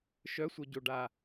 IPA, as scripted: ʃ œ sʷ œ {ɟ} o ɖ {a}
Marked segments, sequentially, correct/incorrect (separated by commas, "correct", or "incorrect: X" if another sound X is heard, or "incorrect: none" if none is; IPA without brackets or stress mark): correct, correct